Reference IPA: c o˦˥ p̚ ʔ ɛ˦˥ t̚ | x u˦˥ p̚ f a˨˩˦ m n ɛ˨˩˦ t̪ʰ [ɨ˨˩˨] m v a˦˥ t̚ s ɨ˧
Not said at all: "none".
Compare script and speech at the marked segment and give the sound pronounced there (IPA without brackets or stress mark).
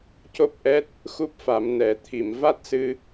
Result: i˨˩˨